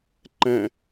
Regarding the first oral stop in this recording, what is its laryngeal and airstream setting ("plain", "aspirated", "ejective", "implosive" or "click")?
click